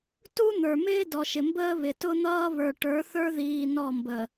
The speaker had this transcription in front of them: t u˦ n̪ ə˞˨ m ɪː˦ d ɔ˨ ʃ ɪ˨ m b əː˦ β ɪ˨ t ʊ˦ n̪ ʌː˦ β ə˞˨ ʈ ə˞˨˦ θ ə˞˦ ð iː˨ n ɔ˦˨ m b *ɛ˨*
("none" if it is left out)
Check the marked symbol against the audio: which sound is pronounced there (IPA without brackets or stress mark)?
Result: ə˨